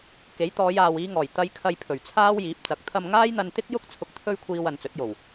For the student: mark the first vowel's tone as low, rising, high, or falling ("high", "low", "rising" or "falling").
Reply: rising